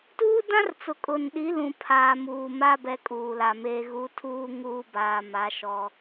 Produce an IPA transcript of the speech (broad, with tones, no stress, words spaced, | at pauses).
tuː˦dã˦rt͡sʊ˨ kʼʊ˨nɗi˨˦lũ˨ pʰaː˨muː˨ma˦ bɛ˦kʼuː˨la˨meː˦ ɣu˨˦tʰuː˦ ŋuː˦baː˨ma˨˦ ʃɔ˦